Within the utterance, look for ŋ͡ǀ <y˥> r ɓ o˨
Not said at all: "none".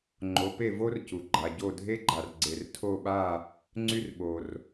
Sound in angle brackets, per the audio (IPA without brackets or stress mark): y˥